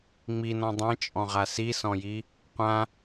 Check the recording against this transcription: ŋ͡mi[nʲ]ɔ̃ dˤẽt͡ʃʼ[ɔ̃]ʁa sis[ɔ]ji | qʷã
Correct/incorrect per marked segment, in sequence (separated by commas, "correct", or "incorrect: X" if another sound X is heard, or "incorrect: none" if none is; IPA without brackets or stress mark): incorrect: n, correct, incorrect: ɔ̃